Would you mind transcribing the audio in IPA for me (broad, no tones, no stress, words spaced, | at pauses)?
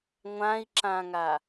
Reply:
ŋʷãi̯ǁãŋa